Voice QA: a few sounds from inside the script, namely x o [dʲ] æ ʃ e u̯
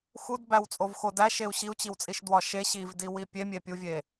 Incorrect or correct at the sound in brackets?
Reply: incorrect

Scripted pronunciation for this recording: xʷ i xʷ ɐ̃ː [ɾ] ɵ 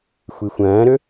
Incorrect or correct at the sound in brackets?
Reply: correct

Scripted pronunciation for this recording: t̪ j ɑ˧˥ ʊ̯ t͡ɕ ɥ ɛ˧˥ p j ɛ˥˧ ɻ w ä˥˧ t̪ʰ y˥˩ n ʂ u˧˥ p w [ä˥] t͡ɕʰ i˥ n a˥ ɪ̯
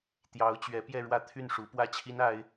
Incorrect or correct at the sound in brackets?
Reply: correct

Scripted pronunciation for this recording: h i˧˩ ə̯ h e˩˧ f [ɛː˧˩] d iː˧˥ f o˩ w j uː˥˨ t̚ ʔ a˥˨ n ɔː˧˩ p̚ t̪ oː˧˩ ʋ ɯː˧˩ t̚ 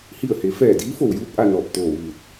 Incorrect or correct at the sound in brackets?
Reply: correct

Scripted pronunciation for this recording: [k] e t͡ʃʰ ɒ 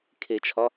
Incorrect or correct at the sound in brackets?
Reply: incorrect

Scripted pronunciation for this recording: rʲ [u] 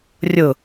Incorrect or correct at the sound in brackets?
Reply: incorrect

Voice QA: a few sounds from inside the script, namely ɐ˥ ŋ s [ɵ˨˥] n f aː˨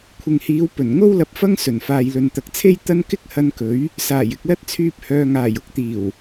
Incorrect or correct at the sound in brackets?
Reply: incorrect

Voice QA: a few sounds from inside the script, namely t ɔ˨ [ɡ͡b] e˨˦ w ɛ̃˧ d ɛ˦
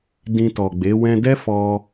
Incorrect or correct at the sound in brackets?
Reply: correct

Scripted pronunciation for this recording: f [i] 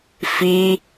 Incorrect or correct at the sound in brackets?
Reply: correct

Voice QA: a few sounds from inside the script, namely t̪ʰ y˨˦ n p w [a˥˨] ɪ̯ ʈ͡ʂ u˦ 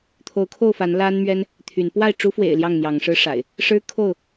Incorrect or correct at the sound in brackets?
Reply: correct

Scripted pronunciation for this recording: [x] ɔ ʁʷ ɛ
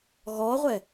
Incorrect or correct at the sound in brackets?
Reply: incorrect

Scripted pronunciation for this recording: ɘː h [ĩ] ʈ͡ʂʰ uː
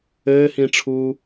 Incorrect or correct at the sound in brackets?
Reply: correct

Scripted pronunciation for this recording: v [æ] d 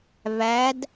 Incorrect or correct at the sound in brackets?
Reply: correct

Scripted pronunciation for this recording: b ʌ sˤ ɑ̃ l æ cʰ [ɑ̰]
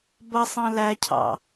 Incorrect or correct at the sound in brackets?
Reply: correct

